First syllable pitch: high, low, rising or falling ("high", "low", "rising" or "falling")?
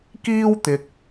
high